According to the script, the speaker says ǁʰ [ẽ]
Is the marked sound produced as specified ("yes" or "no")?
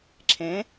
yes